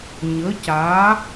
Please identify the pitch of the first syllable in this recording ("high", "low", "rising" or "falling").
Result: rising